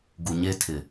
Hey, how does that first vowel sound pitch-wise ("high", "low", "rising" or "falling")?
low